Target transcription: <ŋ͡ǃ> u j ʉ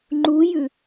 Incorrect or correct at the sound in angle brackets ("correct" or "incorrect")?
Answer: correct